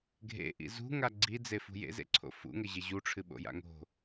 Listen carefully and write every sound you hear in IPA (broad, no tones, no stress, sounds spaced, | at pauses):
ɡʱ ḛ ʔ ḭ z ṳ ŋ a ɡ͡ǀ i d͡z e f ṳ j ḛ z ḛ ǀʰ o̰ f ṵ ŋ ɘ ʑ e ʑ u ʈ͡ʂʰ ɨ ɓ o̰ j a̰ ŋ o̤